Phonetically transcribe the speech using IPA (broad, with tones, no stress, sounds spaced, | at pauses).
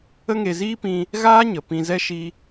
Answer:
ə˦ ŋ e˧ z iː˦ p ĩ˧ | ɣ aː˦ ɲ ə˨ p ĩ˧ z ɛ˦ ʃ i˦